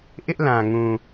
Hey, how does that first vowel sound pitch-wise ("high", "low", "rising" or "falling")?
high